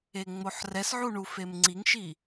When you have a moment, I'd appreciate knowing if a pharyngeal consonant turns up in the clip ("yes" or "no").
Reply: yes